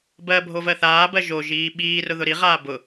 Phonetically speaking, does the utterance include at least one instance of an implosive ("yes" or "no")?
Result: yes